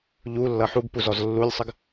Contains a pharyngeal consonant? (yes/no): yes